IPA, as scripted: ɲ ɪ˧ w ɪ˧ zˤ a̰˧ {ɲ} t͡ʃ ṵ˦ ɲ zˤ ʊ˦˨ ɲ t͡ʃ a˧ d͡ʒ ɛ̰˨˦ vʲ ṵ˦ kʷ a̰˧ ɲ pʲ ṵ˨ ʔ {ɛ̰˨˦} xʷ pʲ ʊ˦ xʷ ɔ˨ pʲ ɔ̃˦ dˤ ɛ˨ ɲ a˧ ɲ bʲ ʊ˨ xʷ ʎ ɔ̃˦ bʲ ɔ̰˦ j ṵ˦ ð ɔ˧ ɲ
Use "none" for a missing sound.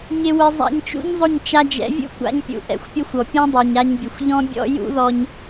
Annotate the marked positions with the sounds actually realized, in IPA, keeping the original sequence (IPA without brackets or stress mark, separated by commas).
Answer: ɲ, ɛ̰˨˦